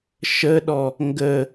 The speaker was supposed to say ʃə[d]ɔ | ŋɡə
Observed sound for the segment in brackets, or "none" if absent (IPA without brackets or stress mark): ɗ